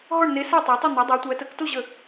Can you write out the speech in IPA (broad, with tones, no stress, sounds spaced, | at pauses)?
ɦ ɔ˥˨ ɳ n e˨˦ s æ˥˨ tˤ i˨˦ tˤ ɘ˥˨ n̪ ɘ˨˦ dˤ æ˨˦ tʷ æ˨˦ t ə˨˦ k t o˥˨ ʑ ə˥˨